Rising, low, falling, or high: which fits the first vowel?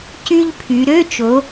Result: high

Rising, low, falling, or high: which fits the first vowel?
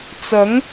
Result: rising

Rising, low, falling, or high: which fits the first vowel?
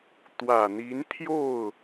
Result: low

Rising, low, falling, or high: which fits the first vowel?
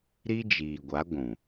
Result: high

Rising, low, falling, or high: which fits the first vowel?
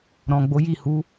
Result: low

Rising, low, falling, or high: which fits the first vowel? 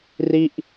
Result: falling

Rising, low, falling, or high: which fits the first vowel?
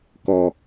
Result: low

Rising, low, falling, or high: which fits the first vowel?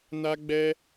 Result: high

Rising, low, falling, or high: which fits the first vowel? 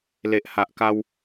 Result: low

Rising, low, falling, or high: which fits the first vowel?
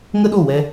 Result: high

